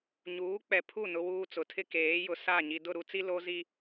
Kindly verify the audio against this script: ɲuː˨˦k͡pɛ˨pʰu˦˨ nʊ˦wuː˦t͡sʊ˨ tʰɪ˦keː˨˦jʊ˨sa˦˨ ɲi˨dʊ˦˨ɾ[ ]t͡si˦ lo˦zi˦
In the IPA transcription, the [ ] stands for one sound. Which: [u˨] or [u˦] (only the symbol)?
u˦